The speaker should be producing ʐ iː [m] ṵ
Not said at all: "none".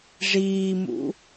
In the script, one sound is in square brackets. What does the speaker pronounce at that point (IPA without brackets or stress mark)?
m